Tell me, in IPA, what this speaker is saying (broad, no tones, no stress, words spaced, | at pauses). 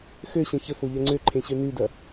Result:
xøɕə̃ çəfo ʎɐŋ͡ǀøǃʰẽ ɕønʉdɐ